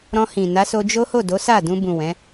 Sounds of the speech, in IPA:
ɾ ɔ̃˧ h ĩ˨ n a˨˦ s o˧ d͡ʒ o˦ h o˦˨ d o˨˦ s a˦˨ d ũ˧ b ũ˨ w ɛ̃˨˦

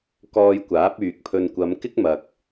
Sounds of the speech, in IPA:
k ɔː˧ j kʷ aː˨˥ p̚ yː˨ k̚ pʰ ɵ˧ n kʷ ɐ˨˧ m k ɪ˥ k̚ m ɐ˨ k̚

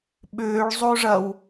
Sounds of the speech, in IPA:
ɓ ʏː ɭ zˤ o ʐ ɐ w

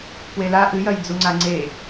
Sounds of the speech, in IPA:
p w e l a ʔ ɨ j ɐ j d͡z u ŋ͡ǀ a ŋ͡ǀ e

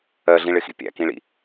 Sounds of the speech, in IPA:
ɜ ɮ ĩ ɭ ɪ x ḭ pʲ æ̰ k ĩ ɭ ḭ

